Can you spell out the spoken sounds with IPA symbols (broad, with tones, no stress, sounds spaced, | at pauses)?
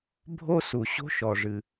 bʱ o˥ s u˩ ɕ o̤˥ ʃ ɔ˩ ʐ ɨ˩